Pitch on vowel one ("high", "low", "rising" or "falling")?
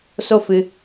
high